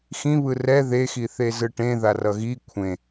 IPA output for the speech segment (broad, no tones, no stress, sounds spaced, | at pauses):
x ĩ β ɯ r ɛ ð e x i θ e z ɯ ʈ ẽ ð a r ʌ ɣ i kʷʰ ẽ